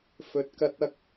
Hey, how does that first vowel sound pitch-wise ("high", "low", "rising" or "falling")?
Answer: low